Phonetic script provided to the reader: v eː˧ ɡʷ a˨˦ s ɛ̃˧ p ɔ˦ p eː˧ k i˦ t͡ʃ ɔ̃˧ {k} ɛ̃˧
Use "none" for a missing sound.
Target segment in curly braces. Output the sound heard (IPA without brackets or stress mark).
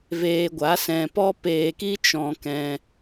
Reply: k